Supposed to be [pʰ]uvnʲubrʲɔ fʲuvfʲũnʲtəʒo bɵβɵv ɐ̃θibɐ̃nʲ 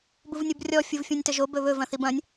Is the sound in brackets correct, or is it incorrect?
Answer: incorrect